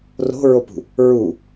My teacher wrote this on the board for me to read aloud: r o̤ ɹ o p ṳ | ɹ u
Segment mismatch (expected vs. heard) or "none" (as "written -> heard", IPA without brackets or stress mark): none